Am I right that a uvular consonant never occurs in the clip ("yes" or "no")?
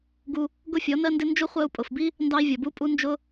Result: no